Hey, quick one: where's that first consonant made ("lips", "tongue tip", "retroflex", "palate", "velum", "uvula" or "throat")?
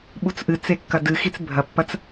lips